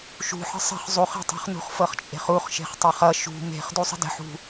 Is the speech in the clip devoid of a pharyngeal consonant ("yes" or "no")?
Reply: no